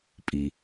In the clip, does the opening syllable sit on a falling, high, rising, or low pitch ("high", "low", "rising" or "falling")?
low